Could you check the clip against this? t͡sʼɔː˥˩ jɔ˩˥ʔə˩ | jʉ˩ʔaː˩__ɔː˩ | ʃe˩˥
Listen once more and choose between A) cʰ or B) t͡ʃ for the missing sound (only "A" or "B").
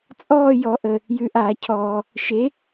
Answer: A